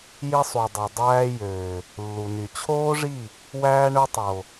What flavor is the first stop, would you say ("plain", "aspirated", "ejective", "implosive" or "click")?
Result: plain